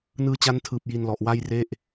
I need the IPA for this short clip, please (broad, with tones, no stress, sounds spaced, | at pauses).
n ɯː˧ t͡ɕ a˦˥ n tʰ ɯː˨˩ p̚ j i˧ n l ɔ˨˩ ʔ w a˥˩ j r e˥˩ ʔ